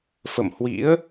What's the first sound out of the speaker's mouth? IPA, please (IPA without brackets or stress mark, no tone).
f